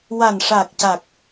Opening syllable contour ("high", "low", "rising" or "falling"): low